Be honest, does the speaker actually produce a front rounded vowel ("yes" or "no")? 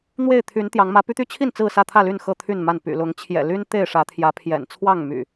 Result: yes